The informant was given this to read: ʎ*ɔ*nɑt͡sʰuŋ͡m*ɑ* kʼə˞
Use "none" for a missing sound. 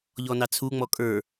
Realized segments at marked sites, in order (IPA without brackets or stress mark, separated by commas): ɔ, ɔ